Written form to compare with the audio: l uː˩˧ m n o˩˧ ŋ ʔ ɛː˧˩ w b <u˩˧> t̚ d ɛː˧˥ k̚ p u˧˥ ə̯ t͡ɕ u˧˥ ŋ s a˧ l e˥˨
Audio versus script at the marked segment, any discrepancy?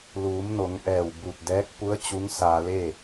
yes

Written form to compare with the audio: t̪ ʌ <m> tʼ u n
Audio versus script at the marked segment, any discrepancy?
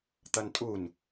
yes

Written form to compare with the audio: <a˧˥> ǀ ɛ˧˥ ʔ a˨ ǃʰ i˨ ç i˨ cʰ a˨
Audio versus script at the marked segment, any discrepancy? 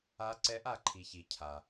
no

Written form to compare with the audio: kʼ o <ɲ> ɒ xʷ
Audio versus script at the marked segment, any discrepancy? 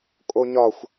no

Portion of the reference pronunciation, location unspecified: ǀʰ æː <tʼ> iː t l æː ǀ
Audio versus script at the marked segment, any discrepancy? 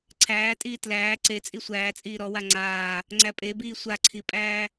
no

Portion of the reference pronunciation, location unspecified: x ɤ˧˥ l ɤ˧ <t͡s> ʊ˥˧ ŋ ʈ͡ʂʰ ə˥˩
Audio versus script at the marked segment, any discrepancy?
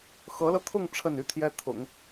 yes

